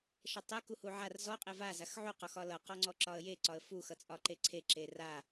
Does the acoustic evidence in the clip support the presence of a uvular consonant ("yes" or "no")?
yes